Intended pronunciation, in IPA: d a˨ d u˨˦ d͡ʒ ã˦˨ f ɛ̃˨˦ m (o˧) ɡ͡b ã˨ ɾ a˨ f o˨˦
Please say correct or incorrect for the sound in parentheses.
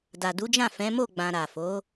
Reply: incorrect